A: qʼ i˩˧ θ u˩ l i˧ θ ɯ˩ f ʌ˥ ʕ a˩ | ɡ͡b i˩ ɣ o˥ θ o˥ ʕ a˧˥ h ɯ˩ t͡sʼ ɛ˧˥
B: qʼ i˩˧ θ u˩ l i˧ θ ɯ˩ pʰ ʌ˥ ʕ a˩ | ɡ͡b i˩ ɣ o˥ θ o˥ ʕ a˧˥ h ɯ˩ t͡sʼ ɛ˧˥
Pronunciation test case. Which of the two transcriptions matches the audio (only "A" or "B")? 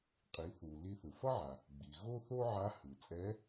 A